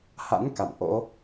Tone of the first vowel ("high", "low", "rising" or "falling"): rising